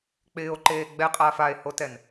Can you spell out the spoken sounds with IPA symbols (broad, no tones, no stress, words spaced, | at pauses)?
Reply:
k͡pɪːo̯ǃeː ɡ͡bɛqʼaːf ae̯hotɛn